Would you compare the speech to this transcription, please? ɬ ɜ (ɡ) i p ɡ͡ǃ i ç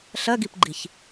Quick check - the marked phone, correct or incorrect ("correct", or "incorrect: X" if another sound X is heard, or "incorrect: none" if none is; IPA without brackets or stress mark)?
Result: correct